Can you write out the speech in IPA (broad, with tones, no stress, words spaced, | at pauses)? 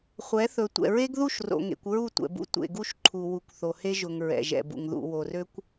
χʷɛ˨˦θɵ˨ tʷɛ̰˨ɹe˦ɡðu˦˨ʃro̰˨ ŋḛ˨kʷɹu˦˨tʷɛ̰˨bṵ˦ tʷḛ˨ɡu˦ʃǃʰu˨ wu˨kʷθo˨he˦ʒʊ˨ŋ ɹɛ̰˨ʒɛ̰˨bṵ˨ŋ ðṵ˨wo˨rø˦kʷ